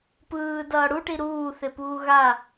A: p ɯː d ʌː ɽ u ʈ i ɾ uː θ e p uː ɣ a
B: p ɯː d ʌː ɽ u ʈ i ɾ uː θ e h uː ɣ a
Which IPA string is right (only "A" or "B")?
A